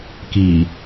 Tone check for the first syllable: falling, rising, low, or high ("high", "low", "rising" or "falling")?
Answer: low